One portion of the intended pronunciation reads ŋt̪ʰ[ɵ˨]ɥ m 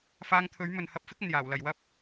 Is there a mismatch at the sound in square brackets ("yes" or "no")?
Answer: yes